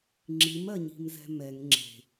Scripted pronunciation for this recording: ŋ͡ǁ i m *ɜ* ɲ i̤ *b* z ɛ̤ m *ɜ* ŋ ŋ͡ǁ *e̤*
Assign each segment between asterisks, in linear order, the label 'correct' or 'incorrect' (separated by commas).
correct, incorrect, incorrect, correct